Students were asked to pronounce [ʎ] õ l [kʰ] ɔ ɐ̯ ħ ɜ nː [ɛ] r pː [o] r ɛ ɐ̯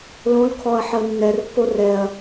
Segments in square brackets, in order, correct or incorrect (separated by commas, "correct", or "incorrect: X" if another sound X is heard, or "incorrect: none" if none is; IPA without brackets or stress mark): incorrect: l, correct, correct, correct